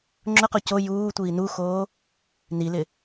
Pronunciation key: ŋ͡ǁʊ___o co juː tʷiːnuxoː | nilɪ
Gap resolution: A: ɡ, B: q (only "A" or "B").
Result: B